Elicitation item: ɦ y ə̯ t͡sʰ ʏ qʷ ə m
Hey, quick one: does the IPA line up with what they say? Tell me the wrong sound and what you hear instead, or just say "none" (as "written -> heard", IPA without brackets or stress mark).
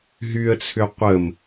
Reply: none